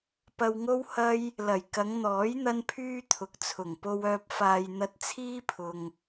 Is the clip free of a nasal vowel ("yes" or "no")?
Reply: yes